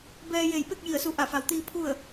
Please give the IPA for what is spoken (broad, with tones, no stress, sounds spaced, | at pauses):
b ɛː˧ j e˧˩ j p e˥˨ k̚ j i˧˩ ə̯ s u˧˩ ʔ a˧˩ f a˩ w t̪ iː˧ pʰ u˥˨ ə̯